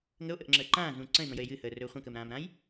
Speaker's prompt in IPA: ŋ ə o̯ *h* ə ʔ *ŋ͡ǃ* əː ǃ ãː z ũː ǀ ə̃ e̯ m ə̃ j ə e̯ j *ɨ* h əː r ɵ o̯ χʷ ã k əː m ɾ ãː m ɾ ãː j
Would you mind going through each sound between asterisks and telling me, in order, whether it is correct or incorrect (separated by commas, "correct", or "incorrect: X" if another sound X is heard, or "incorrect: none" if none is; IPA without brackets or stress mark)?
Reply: incorrect: ʔ, incorrect: ŋ͡ǁ, correct